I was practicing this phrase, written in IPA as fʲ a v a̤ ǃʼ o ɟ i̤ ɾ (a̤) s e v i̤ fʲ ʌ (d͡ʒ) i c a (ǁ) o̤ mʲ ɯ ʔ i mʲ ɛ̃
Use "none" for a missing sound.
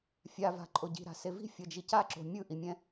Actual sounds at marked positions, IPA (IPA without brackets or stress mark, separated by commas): a̤, d͡ʒ, ǁ